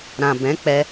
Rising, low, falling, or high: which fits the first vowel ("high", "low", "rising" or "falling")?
low